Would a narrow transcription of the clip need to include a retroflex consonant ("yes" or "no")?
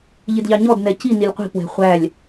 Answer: no